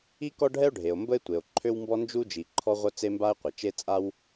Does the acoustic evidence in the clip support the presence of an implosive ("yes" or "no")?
no